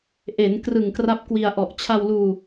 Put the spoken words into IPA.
ʔe˩˦n krɯ˨˩ŋkra˦˥p̚kwi˧a̯ ʔɔ˨˩ʔt͡ɕʰa˧wluː˧

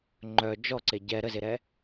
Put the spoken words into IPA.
ŋ͡ǃœ d͡ʒɔǀe ɟɛ ɾəzeɾɛ

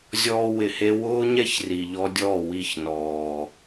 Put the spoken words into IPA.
zʲɔː˧wɪ˨he˧ wʊː˦ɲɛ˦ç ri˨ʎɔ˧dʲɔ˦˨ wi˦˨çnɔː˨

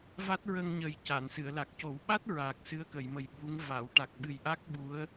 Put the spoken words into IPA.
va˦˥t̚ɹə˧ŋɲə˨˩j ca˨˩˨nsɨ˨˩˨ə̯la˨˩k̚ co˨˩˦wɓa˦˥t̚ ɹaː˨˩k̚sɨ˧˥ə̯kə˨˩˨jmə˨˩j ɓu˧˥ŋ va˨˩˨w ʈa˨˩k̚ɓɨ˨˩jʔa˦˥k̚ ɓu˧˥ə̯

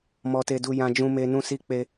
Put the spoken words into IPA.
mɔ˦te˦du˦ jã˦d͡ʒũ˦me˦ nũ˦si˦k͡pe˦

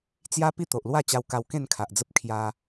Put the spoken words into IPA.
t͡sja˦ pi˥˧t̪o˨ʔlwa˥˧t͡ɕa˧w ka˧wkẽ˥˧nkʰa˨ʔd͡zə˦p̚ kʰja˧

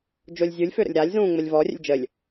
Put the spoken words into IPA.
d͡ʒolʲzʲulʲ føɾə̰lʲɾalʲ zũːŋ͡məlʲvɔ rʲə̰lʲd͡ʒəlʲ

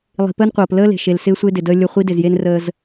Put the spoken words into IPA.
lˠi̤˨pəː˦nqʷɤː˨p ləː˦le̤˨ ʃe˨lsɪː˦sʷɪː˦ dɪ˨dəː˦ lʲə˦˨ χʷi˦dɪ˨zje˦n rəː˦z

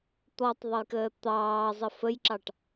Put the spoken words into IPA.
t̪ɔtˤðˤəjkəː t̪ɑːzˤə fəjǁɑʈ

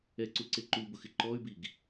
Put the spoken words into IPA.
ɛǀuǀe ǃubʊxɪ ǃɔy̯biɡ

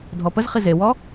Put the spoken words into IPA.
dʱɔpəzχi zewɔ

